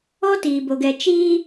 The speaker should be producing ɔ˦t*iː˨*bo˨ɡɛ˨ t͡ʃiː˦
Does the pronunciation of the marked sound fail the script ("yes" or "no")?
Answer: no